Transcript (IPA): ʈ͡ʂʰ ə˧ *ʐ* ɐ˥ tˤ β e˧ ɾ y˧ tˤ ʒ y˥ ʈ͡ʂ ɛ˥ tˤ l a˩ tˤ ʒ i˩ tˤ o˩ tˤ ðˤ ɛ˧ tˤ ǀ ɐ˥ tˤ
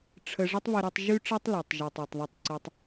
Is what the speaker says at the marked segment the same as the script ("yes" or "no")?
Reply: yes